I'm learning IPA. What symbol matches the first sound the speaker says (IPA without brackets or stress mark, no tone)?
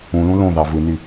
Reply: ũ